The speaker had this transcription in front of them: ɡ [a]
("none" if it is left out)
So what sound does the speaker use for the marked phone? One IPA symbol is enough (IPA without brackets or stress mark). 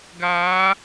a